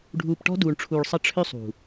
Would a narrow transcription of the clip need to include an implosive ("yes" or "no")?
no